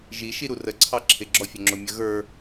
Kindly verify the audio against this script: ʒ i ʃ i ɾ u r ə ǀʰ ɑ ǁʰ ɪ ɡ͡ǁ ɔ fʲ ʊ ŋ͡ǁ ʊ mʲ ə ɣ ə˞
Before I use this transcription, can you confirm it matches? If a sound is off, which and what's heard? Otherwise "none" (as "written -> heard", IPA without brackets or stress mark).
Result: none